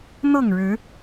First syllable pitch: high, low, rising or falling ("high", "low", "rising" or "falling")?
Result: falling